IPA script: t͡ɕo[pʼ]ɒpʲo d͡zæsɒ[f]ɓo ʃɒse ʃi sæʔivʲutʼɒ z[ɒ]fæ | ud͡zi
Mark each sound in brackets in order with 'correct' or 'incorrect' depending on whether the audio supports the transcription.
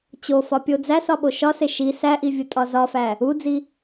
incorrect: f, incorrect: none, correct

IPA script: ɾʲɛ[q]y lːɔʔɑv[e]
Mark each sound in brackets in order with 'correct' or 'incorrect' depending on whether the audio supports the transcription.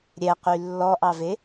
correct, correct

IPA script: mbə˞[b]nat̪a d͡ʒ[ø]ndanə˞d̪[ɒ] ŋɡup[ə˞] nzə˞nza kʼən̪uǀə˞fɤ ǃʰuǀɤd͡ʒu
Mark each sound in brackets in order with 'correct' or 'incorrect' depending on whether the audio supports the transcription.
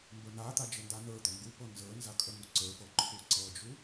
incorrect: none, incorrect: ə, correct, incorrect: ɤ

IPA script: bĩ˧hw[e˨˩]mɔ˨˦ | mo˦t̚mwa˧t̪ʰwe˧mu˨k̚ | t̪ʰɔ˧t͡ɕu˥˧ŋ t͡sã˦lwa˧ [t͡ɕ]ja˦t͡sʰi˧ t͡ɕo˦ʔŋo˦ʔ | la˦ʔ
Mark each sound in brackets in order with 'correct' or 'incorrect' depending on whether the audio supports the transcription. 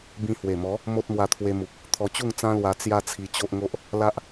correct, incorrect: t͡s

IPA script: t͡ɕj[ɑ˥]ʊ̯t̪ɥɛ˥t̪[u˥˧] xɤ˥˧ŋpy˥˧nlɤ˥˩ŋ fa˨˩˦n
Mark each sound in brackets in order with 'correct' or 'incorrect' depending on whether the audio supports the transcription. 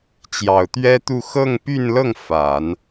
incorrect: ɑ˨˩, correct

